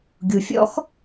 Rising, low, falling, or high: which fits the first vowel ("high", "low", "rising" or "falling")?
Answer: low